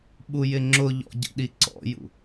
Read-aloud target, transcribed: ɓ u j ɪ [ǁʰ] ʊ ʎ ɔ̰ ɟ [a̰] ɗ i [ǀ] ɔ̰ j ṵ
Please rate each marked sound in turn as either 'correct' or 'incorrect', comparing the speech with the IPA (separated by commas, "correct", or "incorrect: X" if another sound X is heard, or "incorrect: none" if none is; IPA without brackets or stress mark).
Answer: incorrect: ŋ͡ǁ, incorrect: ə̰, correct